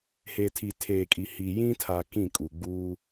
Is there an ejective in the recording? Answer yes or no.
yes